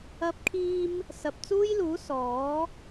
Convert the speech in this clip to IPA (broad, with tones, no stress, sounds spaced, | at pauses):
ɐ˧ p̚ kʰ iː˧ m | s ɐ˨ p̚ t͡s uː˥ j l uː˨˥ s ɔː˨˥